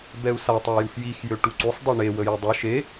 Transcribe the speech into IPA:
b ɛ u̯ s a tˤ a j u x j i x j ø ʈ u ǀ u sˤ dˤ ɛ ɳ e w ə j œ dˤ œ ʃ e

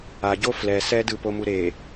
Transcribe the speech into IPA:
a ɟ o f l ɛ s ɛ d ɯ p o m u ɾ e

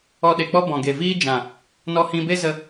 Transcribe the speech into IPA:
ɔ˧ ɗ e˨ k͡p ɔ˦ b ɔ̃˨ ɡ e˨ v iː˦ d͡ʒ ã˨ | n ɔ˧ h ĩ˧ b e˦ z ə˧

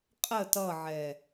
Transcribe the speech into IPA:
qʼ ə t ʌ ʕ ɛ

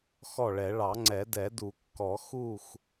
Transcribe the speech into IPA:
x ɔ˥˩ ɭ ɛ˨˩˦ ɭ ɑ˨˩˦ ŋ͡ǀ ɛ˨˩˦ d ɛ˨˩˦ d u˨˩˦ kː ɔ˨˩˦ x u˥˩ x

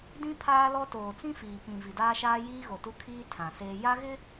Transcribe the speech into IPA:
d ĩ˦ pʰ aː˦ l ɔ˦ t oː˨ t͡s ĩ˦ f iː˨ p ĩ˨ v i˨ d aː˦ ʃ aː˦ j iː˦ ɣ o˨ t u˦ kʰ iː˦ tʰ ã˨ s eː˦ j a˦ ɣ ɪ˦

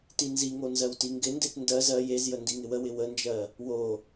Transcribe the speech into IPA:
t i n z i ŋ o n z ɜ w t i ŋ ɡ ɪ n d e t n d ɜ z ɜ j e z j ə n d i ŋ ɪ w ə w ɪ w ə n d͡ʒ ɜ | w o

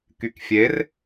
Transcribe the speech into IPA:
k y k fʲ e r

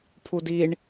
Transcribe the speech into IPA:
pʰ u d i ɳ

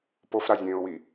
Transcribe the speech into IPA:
p o f ɾ a zʲ ẽː ʊ̯ w i

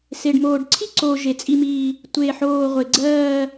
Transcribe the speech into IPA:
s e˨ ɖ m oː˨ ɖ ǀʰ i˥˧ ǀ o˨ ʒ e˨ t͡sʼ i˥˧ m iː˥˧ | tʷ e˥˧ ħ oː˥˧ ʁʷ e˨ ɡ͡ǀ ɜː˥˧

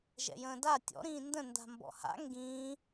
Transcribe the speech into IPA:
ʒ ɛ̰ j ə̃ː d a tʲ ɔ̰ ɾ ĩː n d ə̃ n d a̤ m b ɔ̰ h a̰ ŋ ɡ ĩː

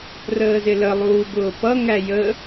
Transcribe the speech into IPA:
r əː z ɪ l ə lˠ uː b ʊː p ʌ ŋ æ j ə

